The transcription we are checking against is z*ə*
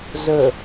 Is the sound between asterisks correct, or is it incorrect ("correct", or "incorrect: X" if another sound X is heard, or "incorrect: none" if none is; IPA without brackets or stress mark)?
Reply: correct